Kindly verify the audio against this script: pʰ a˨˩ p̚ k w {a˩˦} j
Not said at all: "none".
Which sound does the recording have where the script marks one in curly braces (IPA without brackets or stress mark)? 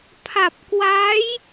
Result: a˦˥